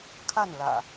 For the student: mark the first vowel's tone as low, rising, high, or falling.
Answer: falling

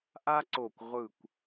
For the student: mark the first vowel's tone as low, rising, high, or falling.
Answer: high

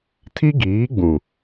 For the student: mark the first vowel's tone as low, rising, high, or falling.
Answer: high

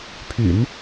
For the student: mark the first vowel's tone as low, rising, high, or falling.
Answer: low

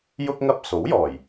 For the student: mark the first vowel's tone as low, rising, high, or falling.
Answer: high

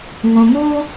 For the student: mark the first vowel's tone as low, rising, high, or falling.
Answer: low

